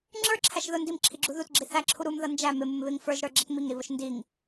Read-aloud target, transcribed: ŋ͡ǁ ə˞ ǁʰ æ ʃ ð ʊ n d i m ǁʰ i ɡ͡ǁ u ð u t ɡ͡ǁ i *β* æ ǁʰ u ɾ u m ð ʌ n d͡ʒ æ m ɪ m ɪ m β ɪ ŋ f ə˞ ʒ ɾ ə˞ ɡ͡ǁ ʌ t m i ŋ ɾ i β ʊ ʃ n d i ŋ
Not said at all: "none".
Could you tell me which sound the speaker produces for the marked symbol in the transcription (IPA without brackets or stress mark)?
θ